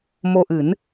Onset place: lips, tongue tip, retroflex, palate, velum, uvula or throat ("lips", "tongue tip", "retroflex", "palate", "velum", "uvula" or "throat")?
lips